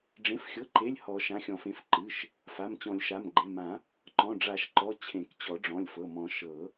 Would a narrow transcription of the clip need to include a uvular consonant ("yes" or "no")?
no